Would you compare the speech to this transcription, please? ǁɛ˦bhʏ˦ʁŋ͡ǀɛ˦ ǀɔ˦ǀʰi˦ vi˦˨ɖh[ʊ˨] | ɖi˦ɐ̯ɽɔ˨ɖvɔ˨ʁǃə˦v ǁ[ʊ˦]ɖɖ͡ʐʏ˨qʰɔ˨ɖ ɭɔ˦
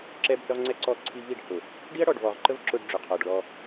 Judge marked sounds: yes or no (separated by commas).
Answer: yes, yes